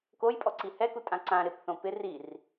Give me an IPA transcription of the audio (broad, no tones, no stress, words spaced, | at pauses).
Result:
kojpʼɔǀi hɛkutʼã ǀã ɾɪpθõ pɪ rir